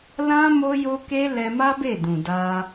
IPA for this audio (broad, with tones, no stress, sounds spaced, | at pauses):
l ã˦ m o˦ j o˦ k e˦ l ɛ˧ m a˦ b e˦˨ d ũ˨ d a˧